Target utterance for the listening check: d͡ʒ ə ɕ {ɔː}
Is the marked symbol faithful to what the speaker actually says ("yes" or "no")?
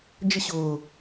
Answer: no